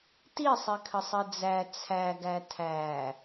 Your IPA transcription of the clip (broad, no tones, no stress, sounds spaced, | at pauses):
t i sˤ i kʰ ə sˤ i d͡z æ t͡sʰ æ ɡ æ tʰ æ